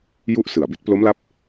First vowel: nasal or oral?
oral